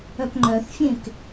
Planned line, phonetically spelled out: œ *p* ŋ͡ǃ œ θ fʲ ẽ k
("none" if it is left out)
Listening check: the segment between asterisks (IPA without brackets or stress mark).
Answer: p